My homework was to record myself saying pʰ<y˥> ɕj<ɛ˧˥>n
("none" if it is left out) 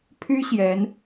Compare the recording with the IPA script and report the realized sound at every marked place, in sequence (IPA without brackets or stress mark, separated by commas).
y˥, ɛ˧˥